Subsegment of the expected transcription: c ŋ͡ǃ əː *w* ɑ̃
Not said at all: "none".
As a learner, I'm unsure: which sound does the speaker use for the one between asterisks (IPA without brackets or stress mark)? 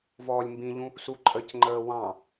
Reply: w